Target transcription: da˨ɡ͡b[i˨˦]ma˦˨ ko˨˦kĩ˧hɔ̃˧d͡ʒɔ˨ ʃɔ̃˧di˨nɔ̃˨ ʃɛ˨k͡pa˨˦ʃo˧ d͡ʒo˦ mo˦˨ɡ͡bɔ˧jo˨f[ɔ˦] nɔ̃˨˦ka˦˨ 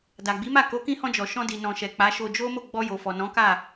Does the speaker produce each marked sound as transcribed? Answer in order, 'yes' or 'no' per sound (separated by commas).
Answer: yes, no